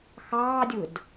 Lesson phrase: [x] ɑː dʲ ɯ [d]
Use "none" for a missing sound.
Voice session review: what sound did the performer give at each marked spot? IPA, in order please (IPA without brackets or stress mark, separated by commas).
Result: x, d